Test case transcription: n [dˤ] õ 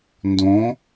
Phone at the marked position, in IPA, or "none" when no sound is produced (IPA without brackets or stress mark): d